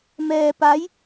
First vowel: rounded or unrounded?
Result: unrounded